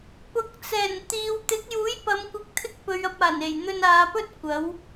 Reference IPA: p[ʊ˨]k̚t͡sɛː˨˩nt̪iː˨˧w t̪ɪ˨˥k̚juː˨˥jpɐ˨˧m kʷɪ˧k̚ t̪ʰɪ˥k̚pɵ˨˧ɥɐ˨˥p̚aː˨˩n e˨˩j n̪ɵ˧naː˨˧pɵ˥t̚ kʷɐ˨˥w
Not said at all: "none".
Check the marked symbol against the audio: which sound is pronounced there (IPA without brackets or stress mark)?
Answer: ʊ˨˥